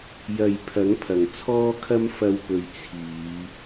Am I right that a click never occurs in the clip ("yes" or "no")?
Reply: yes